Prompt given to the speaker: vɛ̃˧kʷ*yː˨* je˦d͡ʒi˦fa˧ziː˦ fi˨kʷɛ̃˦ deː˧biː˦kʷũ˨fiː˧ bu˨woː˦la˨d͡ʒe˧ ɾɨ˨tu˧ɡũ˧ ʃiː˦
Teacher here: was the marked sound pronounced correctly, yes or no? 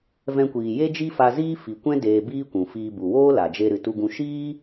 no